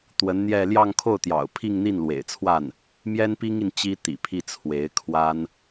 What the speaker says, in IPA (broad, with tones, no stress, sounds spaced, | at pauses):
t̪ w ə˧˥ n n̪ j ɛ˥˧ l j ɑ˥˧ ŋ kʰ o˥˩ ʊ̯ t̪ j ɑ̰˨˩ ʊ̯ pʰ i˥˧ ŋ n̪ i˥˩ n l w ḛ˨˩ ɪ̯ t͡sʰ w a˥˩ n | m j ɛ˥ n p i˥ ŋ i˨ n t͡ɕ i˥ t̪ ḭ˨˩ pʰ i˥˩ t͡sʰ w e˧˥ ɪ̯ kʰ w a˥ n